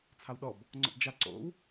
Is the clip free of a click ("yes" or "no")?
no